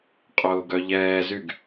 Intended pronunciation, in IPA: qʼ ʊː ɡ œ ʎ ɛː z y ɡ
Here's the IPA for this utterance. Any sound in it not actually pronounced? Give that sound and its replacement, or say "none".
none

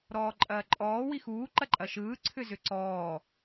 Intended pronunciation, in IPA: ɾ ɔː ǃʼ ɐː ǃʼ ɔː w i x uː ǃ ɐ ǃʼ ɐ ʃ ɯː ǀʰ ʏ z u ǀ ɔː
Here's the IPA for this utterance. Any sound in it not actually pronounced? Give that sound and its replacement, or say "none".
u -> ʏ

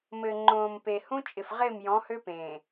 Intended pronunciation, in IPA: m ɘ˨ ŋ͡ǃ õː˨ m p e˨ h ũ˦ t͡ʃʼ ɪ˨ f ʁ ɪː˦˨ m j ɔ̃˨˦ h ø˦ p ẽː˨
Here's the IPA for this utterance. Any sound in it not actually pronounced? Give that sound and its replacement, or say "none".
none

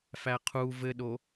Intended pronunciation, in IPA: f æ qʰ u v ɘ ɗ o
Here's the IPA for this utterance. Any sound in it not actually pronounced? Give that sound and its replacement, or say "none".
none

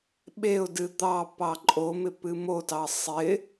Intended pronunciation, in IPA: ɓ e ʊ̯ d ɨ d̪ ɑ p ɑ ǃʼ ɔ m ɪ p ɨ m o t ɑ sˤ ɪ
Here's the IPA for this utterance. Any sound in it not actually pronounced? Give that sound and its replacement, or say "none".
ɔ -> o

